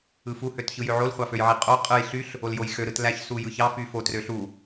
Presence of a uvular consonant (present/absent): present